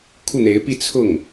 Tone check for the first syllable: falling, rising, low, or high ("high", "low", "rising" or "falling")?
falling